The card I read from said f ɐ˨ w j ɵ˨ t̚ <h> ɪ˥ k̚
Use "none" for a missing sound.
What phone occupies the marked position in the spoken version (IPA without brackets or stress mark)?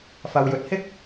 h